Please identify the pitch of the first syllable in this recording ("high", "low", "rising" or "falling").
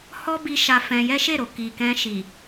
high